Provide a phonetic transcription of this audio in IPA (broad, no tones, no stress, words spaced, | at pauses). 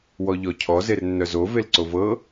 wɔʎɔcʰɔ zernːœzo velǀovɤ